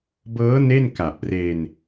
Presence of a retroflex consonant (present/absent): absent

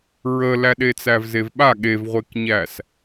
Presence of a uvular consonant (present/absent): present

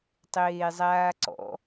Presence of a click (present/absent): present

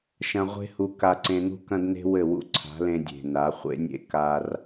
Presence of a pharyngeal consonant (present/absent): absent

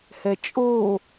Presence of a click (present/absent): absent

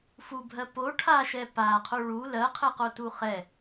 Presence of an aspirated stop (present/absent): present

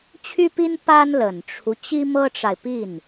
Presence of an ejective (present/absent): absent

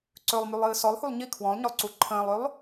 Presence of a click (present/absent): present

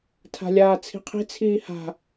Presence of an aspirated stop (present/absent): present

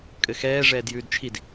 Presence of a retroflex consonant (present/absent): present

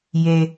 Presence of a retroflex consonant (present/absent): absent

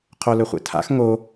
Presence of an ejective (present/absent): absent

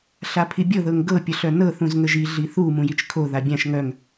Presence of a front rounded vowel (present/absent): present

